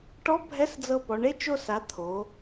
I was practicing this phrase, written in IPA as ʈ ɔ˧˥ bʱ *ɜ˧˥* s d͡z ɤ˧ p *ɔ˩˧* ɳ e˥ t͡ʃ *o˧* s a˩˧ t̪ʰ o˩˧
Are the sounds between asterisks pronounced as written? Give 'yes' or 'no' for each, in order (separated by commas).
no, yes, yes